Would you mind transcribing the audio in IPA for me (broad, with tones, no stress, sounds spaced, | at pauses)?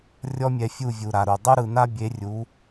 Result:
rʲ ɔ˦ mʲ ɛ˧ fʲ u˦˨ vʲ u˨ ɾ a˨ ɾ u˨ dˤ u˧ ɾ ɯ˨ n a˦ bʲ e˨˦ rʲ u˨˦